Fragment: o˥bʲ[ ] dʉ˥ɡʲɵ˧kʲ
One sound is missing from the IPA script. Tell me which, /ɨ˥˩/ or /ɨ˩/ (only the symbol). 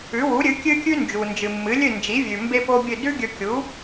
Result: ɨ˥˩